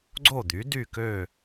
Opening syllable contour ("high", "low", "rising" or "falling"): falling